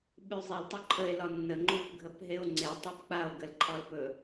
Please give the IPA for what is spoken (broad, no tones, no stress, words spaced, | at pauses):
ɓʉzˤil tˤɵǃʰəe̯lɒ nːə ŋ͡ǃupɡʱəpɦeo̯ ŋ͡ǀetˤip k͡pao̯ɡəlǃʰɒlpɵ